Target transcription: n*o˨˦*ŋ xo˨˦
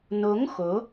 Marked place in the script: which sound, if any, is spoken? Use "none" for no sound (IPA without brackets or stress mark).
o˨˦